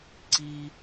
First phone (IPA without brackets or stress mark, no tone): ǀ